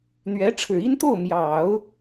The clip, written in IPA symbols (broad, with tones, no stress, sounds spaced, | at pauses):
n̪ ɥ ɛ˧˥ ʈ͡ʂʰ ɻ̩˨˩ i˥ n t̪ o˥˩ ʊ̯ m j ɑ˨˩˦ ʊ̯